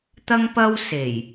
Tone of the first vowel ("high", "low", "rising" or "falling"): high